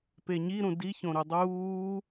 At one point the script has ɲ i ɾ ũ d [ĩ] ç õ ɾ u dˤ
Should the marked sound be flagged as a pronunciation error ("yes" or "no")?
yes